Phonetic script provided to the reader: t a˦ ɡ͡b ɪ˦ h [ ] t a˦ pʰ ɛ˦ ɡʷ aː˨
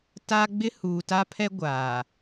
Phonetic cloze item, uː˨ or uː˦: uː˨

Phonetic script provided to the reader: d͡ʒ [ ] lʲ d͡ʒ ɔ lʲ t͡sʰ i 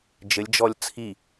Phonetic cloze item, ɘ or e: ɘ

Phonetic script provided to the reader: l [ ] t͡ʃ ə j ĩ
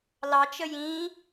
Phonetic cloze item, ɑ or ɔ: ɑ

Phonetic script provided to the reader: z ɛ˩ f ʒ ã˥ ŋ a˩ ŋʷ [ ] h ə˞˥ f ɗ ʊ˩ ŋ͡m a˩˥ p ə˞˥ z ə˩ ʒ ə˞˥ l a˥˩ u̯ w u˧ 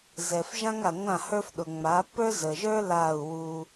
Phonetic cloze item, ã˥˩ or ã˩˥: ã˥˩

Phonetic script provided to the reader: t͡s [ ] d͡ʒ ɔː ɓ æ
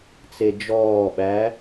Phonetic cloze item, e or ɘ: e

